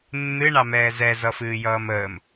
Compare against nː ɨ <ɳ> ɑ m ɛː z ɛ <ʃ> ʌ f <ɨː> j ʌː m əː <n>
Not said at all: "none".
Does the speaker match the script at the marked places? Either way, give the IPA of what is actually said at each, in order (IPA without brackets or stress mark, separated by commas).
ɳ, z, ɨː, m